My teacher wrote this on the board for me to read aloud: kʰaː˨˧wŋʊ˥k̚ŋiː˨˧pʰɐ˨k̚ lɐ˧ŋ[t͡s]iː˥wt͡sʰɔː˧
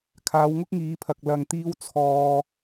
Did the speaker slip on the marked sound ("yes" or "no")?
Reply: yes